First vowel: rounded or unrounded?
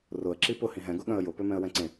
rounded